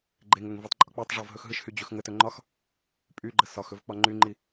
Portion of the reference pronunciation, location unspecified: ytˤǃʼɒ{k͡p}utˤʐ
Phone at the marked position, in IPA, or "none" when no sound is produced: k͡p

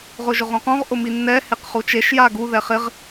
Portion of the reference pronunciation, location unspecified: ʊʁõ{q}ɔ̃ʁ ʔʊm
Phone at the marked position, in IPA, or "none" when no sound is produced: q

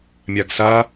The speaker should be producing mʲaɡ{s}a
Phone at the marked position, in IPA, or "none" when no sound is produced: s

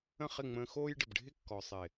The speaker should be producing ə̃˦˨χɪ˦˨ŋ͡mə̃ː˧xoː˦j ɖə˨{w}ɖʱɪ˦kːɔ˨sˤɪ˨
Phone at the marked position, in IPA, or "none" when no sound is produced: b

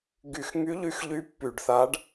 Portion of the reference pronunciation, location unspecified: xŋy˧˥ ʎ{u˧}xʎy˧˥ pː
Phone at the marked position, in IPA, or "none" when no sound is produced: y˧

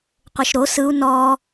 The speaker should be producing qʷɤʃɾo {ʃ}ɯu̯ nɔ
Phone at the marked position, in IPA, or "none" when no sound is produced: s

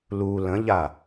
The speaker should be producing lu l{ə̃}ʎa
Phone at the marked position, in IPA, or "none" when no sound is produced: ə̃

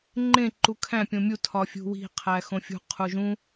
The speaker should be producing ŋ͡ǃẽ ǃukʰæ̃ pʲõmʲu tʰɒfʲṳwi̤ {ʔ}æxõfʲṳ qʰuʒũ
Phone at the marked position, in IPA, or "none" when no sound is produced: qʰ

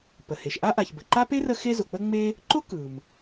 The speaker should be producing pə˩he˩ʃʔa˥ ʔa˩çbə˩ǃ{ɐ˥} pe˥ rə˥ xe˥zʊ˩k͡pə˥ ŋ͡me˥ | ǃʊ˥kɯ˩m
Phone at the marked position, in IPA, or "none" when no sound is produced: a˥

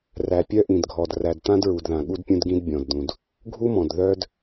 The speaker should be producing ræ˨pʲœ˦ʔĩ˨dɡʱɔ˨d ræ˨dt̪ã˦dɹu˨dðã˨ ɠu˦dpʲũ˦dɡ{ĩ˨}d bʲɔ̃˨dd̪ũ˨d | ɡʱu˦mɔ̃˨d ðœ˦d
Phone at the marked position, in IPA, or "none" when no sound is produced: ĩ˦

